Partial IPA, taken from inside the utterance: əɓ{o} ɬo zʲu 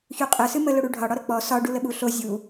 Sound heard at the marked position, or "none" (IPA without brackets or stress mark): u